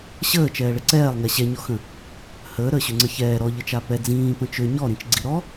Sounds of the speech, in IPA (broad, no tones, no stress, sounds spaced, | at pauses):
ɕ əː t͡ʃ ɛː ɭ ə ǀ ɛː lˠ ŋ ɛ ɕ ɛ ɲ ɔ x ə̃ | h əː ɾ əː ɕ ʏ ŋ͡ǀ ə ç ɛː ɾ ɔ ʎ ə t͡ʃ a p ɛ d͡z ĩː p ə̃ t͡ʃ ø ɲ ɔ ɾ ĩ t͡ʃ ɡ͡ǀ i ɾ ɔ